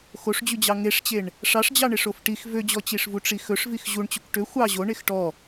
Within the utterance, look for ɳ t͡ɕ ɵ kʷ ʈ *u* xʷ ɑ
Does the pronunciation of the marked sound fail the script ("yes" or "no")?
yes